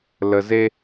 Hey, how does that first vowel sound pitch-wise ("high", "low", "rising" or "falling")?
low